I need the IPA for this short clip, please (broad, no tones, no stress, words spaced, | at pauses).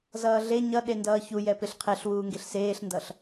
zʌːɮe ɲʌ ɗendʌːçujɛ peɬqʰeɬwuːŋɡeɬ seːɬndʌɬ